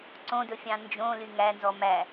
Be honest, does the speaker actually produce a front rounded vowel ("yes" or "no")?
yes